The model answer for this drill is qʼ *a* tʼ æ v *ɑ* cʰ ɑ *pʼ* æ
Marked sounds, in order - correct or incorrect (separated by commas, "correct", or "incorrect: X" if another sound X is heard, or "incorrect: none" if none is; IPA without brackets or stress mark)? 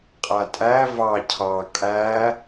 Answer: correct, correct, incorrect: kʼ